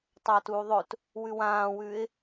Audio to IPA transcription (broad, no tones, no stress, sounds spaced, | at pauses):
tˤ ɐː t uː ðˤ ɵ t | w ʉ w ãː w ʉː ɪ̯